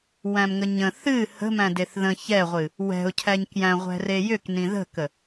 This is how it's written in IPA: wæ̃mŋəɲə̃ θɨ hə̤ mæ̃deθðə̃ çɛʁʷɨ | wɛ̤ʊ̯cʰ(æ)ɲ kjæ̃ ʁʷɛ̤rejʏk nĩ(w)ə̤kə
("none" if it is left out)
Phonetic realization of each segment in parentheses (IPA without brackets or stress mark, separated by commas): æ, ð